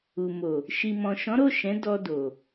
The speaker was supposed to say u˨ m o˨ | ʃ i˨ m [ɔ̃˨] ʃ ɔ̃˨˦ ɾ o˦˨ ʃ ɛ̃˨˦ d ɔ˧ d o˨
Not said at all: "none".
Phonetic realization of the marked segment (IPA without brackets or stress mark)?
ɔ̃˨